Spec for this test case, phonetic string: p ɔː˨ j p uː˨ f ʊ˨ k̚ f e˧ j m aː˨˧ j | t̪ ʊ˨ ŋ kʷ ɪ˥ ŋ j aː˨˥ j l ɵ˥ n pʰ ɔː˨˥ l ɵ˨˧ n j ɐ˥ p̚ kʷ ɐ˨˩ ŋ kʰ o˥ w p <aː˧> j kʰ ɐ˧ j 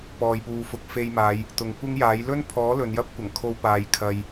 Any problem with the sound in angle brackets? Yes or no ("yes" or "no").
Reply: no